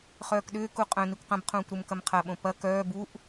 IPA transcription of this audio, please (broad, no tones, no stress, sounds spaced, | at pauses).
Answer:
χ œː k ɗ ʏː k u qʼ œ̃ n i kʷ q ɐ̃ b qʰ ũː kʷ ɾ u m k ɐ m qʰ ɐ ɓ õ p ɐ k œː b u ʔ